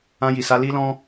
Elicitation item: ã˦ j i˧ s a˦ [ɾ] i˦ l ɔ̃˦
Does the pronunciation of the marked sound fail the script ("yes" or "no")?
yes